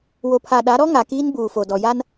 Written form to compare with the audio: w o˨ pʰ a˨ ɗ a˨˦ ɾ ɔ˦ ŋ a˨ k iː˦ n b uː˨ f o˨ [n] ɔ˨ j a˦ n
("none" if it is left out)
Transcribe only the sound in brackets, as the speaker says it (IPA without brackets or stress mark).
d